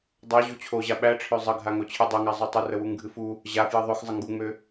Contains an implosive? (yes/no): yes